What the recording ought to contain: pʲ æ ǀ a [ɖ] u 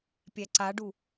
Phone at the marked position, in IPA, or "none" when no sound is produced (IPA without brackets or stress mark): ɖ